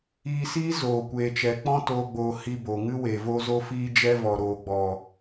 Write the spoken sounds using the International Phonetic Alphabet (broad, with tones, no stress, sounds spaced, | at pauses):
iː˧ s iː˦ z oː˨ kʷ eː˨ t͡ʃ ɛ˨ k͡p ɔ̃˦ t oː˧ ɡ͡b oː˧ h iː˧ b oː˨ ŋ ɨ˦ w eː˨ v o˦ z o˦ f iː˦ d͡ʒ ɛ˦ v ɔ˨ ɾ oː˨ ɡ͡b ɔ˨